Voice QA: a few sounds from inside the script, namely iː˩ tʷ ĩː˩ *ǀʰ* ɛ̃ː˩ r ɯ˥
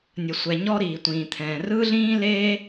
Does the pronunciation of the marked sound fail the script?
yes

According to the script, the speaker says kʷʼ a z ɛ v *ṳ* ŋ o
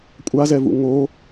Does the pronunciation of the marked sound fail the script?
yes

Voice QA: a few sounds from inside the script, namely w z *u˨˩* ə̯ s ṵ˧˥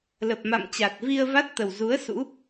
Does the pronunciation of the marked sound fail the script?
yes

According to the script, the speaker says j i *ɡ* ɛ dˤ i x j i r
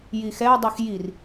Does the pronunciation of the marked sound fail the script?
yes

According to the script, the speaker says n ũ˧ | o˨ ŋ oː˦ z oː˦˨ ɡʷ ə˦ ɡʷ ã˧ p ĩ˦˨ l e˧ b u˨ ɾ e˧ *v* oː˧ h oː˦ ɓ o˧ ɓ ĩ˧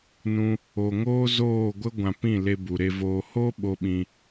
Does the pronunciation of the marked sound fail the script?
no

